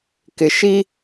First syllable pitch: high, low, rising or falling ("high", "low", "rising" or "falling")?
low